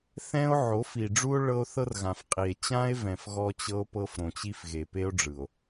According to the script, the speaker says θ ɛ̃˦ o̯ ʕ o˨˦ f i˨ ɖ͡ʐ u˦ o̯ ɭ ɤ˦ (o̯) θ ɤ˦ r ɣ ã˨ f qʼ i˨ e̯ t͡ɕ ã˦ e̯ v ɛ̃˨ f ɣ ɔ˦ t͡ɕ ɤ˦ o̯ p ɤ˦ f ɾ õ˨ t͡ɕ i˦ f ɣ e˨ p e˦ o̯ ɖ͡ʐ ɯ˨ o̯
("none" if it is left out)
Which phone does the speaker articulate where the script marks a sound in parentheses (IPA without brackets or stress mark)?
o̯